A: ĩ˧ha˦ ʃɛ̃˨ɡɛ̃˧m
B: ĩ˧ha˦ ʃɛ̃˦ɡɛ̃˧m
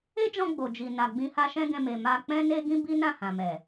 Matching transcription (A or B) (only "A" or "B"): B